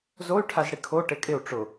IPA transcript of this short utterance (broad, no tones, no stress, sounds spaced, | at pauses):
z o y̯ ʈʰ a z ɽ i kʰ o ʈ e kʼ ɪ u̯ ʈ͡ʂ ʊ